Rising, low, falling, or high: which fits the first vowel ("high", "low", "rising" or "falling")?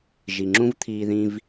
low